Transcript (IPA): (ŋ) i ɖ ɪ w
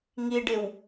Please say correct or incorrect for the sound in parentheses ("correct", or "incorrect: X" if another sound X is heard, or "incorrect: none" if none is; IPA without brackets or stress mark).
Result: correct